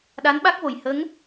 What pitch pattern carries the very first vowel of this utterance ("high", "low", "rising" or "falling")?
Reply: rising